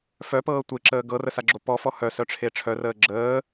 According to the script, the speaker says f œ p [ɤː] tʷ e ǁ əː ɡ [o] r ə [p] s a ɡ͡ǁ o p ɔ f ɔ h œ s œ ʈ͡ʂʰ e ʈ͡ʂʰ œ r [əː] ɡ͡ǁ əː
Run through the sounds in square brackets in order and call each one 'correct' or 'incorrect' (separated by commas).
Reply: correct, incorrect, incorrect, correct